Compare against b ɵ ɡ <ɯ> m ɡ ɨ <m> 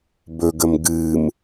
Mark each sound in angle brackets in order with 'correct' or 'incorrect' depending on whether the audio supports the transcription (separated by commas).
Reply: incorrect, correct